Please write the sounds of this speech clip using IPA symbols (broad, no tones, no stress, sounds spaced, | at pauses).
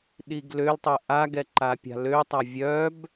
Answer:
ɗ i ɡ l ø l tˤ ɛ ʔ a ɡ ɛ ǃ a pʲ a̤ l ø tˤ a vʲ œ b